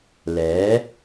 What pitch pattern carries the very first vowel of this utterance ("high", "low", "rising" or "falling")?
rising